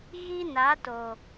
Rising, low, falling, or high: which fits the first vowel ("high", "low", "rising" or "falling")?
high